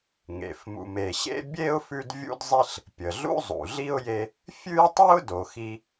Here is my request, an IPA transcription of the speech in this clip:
ŋḛ˩fmṵ˨m e˨ɕḛ˥ bʲe˥ʊ̯fʉ˦d vʲṵ˥dzˤi˥ɬ | pʲə˩ɮṵ˥zˤṵ˩ ɮi˥ʊ̯je˦ | fʲʉ˥jtˤʉ˥ʊ̯ do˨xi˦

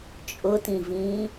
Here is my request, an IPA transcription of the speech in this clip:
t͡ʃʼʊtĩvĩː

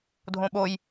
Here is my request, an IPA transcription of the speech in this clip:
dʱõɓoj

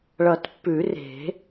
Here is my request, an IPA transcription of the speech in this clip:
ɭʌ˨˩˦tpːʉ˨˩˦ re̤˨˩˦

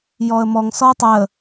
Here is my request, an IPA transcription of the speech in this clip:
jɔə̯mɔŋ sɔʊ̯tˤɛə̯

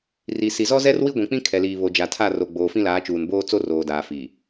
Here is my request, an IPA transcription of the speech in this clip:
ri˨ si˨zɔ˦zɛ˦r wi˦ɡʷĩ˨k͡pĩ˦ kʰɛ˨liː˨ βo˨d͡ʒa˨tʰa˦˨ro˨ ɡ͡boː˨fĩ˦laː˨˦ t͡ʃuː˨nboː˦ t͡so˦roː˨daː˨ fi˨

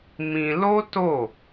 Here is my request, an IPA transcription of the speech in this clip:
mĩ˧lo˦to˦˨

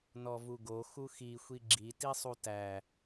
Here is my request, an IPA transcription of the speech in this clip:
nɔvuɡo xuxi xʷiɡ͡ǁi tisˤutæ

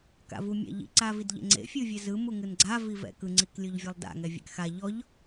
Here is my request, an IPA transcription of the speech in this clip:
ka̰vumʲa̰ʎḭ ǀavidʎḛŋ͡ǀḛ fʲɯvʲɛzɯ muŋɯnɡ͡ǀa vivɛ̰kɯ ŋ͡ǀiklʲoʎvʲɛlˠda̰ ŋɛvʲɛ̰kxa ʎɔʎ

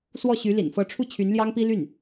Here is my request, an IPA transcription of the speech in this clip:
swɔ˥˩ɕy˧˥lḭ˨˩n fɤ˧˥ʈ͡ʂʰu˥˩ t͡ɕʰy˧˥nljɑ˥ŋpi˥ ly˥˩n

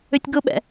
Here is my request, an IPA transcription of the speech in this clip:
ʏtʲɡʊɓɛ̰

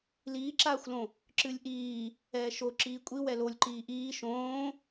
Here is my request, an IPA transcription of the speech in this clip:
liːǁaːxʷlõ | ǁɨlʲʔiː | ɛːʃo ǁiːkʷʼi wɛlolʲ ǃiːʔiː ʃõː

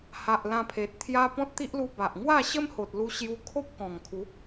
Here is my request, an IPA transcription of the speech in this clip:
ha˨ʔ lã˧pʰe˨t̚ t̪ʰja˧ pɔ̃˦t̚t̪i˦ʔlu˧ ba˨ʔ ŋwa˥˧ɕə˦mho˨t̚ lu˧ɕju˧kʰo˦p̚kɔ̃˨˩ŋ kʰu˨˦

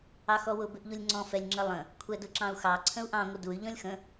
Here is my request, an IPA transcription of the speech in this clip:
ɑxɔwʊ bɪʔʎulʲŋ͡ǀɔ̃ fɛlʲŋ͡ǁəlˠə̃ | kʷʰɛdʊǁɑ̃u̯xɑ ǀʰə̃u̯ʔɑ̃ ŋʷəduy̯ ʎɔ̃lʲxə̃

